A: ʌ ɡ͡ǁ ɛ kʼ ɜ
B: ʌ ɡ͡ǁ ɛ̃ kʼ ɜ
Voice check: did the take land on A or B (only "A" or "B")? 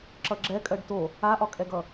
A